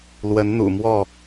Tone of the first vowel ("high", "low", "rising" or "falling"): rising